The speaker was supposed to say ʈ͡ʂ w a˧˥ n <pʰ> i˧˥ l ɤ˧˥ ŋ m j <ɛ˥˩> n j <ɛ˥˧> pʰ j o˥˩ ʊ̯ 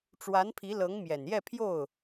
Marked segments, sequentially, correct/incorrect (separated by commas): correct, incorrect, correct